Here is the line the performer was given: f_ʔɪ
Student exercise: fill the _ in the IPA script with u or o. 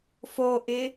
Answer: o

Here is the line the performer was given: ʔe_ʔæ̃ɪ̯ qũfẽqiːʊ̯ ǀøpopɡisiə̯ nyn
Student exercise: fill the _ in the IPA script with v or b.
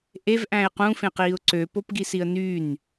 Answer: v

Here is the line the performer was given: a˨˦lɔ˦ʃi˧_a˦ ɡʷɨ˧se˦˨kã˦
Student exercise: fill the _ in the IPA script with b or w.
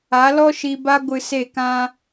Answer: b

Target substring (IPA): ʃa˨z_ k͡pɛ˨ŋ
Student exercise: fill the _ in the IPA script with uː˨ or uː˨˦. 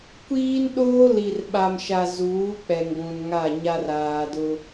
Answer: uː˨˦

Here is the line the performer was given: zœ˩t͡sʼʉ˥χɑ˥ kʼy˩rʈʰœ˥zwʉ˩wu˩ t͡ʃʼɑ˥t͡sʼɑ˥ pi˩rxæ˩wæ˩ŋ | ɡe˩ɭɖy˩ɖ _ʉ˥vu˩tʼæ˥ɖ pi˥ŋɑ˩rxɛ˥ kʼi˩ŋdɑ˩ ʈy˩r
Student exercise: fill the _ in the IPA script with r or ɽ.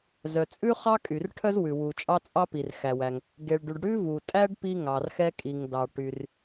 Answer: ɽ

